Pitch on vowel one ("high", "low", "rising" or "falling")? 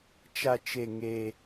low